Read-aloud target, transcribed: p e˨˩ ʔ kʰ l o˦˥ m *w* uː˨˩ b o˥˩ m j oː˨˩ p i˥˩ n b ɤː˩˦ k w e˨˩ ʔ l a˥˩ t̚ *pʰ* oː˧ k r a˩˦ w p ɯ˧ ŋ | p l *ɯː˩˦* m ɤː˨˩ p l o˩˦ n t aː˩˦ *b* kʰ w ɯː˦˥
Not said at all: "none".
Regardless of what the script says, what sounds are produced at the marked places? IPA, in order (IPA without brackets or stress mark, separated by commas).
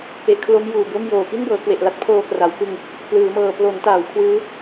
j, pʰ, ɯː˩˦, w